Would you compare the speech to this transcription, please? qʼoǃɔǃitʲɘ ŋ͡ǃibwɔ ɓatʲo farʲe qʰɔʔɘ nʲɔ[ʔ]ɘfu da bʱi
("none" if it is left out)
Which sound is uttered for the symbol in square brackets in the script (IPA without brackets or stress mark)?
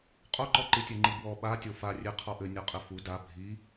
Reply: qʼ